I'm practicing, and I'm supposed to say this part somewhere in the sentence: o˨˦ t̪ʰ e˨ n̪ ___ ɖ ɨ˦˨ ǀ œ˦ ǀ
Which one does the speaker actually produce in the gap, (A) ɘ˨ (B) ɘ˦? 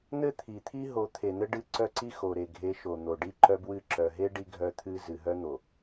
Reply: B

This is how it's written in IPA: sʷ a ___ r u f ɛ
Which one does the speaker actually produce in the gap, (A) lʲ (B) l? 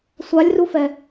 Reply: A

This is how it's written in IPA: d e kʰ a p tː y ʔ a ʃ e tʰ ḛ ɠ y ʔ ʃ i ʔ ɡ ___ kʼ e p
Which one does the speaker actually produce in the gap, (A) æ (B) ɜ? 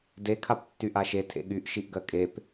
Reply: B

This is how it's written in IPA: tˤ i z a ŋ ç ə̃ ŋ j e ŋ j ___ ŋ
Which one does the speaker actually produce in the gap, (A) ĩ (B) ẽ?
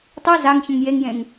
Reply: B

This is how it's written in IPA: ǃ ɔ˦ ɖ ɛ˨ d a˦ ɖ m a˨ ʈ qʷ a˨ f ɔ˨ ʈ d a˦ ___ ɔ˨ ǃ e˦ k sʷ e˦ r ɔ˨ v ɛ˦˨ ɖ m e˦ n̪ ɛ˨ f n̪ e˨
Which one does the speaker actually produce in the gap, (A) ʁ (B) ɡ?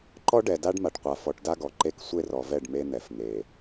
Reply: B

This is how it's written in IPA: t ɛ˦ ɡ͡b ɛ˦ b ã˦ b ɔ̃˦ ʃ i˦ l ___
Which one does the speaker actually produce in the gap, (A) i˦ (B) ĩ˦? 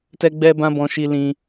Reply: B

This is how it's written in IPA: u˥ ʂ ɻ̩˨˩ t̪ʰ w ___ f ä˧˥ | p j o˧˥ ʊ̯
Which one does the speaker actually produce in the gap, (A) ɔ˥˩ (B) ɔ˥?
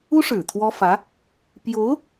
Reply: B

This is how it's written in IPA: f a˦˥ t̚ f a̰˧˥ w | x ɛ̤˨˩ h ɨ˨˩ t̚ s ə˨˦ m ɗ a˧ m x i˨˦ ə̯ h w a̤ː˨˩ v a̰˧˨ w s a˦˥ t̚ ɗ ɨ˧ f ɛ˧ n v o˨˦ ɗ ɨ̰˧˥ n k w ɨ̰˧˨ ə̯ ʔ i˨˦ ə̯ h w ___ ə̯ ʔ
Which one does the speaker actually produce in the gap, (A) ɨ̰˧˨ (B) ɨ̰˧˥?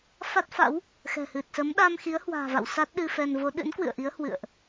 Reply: A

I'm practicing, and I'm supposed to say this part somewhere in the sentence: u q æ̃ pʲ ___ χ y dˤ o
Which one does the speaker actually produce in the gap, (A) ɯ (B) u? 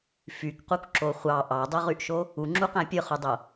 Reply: A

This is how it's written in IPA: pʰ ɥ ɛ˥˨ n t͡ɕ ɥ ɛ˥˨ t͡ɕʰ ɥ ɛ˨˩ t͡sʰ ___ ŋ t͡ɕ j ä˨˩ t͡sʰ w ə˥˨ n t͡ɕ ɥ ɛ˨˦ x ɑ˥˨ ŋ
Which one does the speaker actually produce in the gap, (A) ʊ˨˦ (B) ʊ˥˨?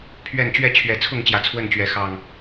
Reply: B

